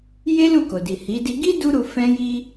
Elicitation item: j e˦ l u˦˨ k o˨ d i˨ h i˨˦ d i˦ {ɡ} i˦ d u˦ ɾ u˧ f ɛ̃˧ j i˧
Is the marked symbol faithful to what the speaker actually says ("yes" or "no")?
yes